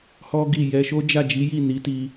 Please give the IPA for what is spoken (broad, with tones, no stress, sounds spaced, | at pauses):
h ɔ˦ ɡ i˦˨ j ɛ˧ ʃ o˦ d͡ʒ a˦˨ d͡ʒ i˨˦ j i˦˨ n i˨˦ t i˧